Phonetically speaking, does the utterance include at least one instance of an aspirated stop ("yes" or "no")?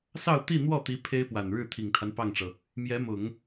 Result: yes